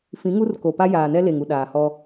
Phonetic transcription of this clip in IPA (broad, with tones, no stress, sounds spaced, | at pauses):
f ĩ˨˦ ŋ u˦ r k o˨ p a˦ j aː˨ n ɛ˦ l e˨ ŋ u˨ ɗ aː˨ h ɔ˦